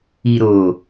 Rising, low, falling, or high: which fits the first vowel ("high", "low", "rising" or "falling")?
low